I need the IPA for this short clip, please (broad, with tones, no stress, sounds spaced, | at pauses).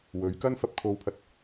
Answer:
w ɵ˨˧ ɥ k ɐ˥ n f ɐ˧ p̚ kʰ o˧ w pʰ ɐ˧ t̚